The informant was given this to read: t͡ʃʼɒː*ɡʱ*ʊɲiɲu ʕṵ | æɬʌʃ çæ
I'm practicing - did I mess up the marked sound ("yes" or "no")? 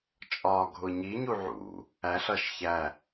no